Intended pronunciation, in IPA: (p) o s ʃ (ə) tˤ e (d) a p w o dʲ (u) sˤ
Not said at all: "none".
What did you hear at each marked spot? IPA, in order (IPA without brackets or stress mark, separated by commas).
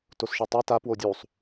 t, ɨ, t, u